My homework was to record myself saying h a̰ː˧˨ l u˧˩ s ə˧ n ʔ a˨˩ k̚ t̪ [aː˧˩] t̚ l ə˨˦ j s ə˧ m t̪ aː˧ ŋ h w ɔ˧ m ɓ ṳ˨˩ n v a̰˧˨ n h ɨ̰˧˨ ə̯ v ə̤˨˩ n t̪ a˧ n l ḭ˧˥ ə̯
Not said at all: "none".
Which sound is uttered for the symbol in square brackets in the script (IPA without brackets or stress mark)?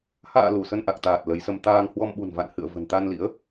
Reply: aː˨˩